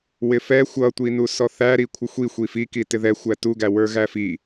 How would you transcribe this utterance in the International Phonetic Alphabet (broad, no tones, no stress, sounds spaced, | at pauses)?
w ɪ f ɛ xʷ ʌ tʷ i n u s ɔ θ æ ɾ i kʷʰ ɪ xʷ i xʷ i f i k i t ɪ ð ɛ xʷ æ t u ɡ æ w ə˞ ɣ æ f i